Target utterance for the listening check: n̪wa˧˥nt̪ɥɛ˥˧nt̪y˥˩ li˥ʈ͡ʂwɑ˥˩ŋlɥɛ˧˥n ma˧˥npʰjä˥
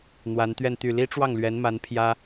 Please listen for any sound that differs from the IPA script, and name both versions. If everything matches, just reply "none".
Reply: none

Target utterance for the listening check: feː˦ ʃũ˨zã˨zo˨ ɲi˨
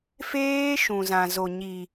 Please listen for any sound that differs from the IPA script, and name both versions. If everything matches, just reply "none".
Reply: none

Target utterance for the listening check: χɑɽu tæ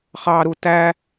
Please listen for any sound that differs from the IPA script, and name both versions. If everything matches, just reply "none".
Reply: ɽ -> ɾ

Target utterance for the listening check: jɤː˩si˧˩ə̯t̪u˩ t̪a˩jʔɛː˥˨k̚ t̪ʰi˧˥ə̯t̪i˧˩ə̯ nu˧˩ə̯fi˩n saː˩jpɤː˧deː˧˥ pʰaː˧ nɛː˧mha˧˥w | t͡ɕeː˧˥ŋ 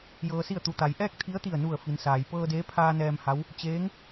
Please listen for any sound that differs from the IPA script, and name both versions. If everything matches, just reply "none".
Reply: none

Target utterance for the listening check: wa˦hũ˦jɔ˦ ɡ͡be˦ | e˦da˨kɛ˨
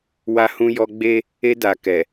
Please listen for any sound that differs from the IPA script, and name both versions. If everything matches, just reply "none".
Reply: none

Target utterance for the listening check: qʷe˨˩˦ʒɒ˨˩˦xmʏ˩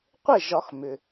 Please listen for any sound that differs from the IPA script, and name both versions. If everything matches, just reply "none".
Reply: e˨˩˦ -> e˥˩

